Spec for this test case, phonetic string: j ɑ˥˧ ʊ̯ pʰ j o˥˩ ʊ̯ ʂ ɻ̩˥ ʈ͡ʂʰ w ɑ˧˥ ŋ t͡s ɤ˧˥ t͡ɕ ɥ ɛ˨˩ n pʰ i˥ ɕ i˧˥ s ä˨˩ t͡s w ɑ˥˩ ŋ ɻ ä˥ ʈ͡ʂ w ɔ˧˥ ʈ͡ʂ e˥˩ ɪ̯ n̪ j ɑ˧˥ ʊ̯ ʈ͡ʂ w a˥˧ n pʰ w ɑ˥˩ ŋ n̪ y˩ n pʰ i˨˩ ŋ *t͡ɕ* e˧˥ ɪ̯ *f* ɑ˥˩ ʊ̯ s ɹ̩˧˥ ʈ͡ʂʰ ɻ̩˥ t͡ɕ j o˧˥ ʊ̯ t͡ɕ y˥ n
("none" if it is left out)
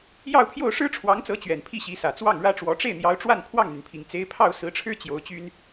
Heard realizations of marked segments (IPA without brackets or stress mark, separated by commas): t͡s, pʰ